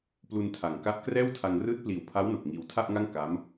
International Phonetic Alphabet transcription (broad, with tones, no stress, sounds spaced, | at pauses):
p l u˧ n tʰ a˩˦ ŋ k a˦˥ ʔ k r ɛː˥˩ w tʰ a˧ ŋ r ɯː˦˥ t̚ p l iː˨˩ w pʰ a˦˥ w n o˨˩ k̚ ŋ iː˧ w tʰ a˥˩ ʔ ŋ a˥˩ ŋ k a˦˥ m